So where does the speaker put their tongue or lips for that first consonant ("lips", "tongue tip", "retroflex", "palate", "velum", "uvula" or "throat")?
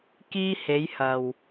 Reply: velum